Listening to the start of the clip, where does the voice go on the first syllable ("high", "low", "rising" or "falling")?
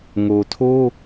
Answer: low